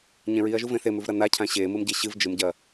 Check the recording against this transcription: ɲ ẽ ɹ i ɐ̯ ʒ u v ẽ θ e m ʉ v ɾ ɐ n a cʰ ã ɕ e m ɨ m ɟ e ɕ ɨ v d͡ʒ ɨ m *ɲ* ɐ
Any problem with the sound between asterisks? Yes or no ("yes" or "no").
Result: yes